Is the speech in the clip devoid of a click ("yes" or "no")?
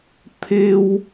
yes